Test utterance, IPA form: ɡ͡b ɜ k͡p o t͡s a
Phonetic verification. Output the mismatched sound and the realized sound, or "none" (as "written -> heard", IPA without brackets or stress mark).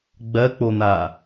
t͡s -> n̪